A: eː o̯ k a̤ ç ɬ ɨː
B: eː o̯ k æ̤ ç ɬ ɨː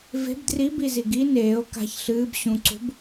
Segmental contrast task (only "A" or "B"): A